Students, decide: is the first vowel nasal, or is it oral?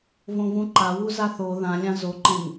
nasal